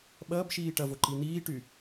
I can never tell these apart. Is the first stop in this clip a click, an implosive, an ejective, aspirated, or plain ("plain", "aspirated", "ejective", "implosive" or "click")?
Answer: implosive